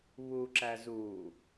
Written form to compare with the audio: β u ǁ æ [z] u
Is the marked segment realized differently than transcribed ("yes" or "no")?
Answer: no